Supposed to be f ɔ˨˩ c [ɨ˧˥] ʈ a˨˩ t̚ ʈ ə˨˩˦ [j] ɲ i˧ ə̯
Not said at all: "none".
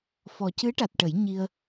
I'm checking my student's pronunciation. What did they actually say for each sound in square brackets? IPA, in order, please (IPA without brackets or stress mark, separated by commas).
ɨ˧˥, j